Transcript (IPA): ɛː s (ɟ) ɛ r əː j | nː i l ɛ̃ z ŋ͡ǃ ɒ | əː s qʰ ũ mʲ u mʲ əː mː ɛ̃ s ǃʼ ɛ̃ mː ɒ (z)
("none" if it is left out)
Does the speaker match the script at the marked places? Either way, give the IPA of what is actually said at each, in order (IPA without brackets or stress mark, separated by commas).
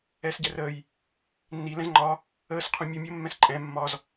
ɟ, z